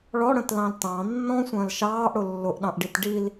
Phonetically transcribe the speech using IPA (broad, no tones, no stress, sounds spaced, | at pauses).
ɭ ɔ ɽ ə̃ t l ɑ̃ l t ɑ̃ nː ɔ̃ sʷ ə̃ː l ʃ ɑː ʔ ɽ ʊ lː ʊ ʔ ɗ ɑ̃ ʔ ɖ i t ɖ i l